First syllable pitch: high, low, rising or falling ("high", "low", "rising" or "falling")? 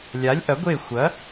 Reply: rising